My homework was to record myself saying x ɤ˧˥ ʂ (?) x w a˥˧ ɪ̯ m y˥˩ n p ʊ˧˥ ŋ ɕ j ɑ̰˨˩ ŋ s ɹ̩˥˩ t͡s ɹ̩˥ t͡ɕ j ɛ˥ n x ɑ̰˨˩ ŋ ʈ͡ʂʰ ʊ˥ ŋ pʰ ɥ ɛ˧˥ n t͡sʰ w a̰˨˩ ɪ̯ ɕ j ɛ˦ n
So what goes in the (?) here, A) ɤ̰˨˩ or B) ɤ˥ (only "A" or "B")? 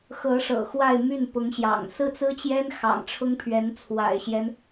A